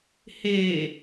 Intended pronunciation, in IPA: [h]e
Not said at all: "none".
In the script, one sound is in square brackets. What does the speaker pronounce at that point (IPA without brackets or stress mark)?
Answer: h